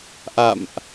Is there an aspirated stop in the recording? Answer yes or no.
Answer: no